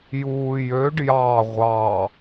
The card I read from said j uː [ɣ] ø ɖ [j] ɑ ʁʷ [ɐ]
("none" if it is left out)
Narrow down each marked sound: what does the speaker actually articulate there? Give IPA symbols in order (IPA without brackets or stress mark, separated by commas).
j, j, ɑ